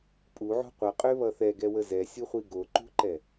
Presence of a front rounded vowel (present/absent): present